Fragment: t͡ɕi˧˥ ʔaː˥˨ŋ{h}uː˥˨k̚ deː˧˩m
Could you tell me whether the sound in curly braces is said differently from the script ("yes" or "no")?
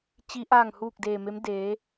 no